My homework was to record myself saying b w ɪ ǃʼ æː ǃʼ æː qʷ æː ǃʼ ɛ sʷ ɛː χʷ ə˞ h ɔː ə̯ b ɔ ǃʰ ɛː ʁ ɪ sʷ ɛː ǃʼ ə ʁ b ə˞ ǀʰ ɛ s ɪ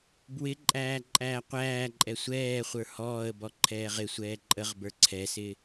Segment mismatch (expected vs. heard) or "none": none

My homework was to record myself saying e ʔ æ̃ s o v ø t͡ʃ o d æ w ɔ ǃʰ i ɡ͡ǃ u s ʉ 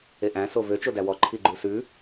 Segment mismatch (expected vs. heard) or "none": none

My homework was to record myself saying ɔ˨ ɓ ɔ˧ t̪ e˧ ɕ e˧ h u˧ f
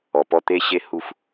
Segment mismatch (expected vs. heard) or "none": ɓ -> p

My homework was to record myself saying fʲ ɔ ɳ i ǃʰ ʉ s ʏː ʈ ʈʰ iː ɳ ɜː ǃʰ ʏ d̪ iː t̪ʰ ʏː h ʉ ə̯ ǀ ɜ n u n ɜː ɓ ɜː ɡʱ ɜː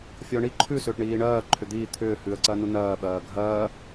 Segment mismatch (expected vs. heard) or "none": ʈʰ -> ɳ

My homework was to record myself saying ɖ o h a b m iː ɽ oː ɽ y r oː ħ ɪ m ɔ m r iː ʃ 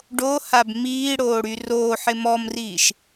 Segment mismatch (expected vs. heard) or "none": none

